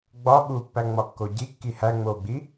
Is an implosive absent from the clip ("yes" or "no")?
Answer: no